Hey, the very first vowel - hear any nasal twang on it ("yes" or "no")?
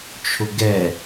no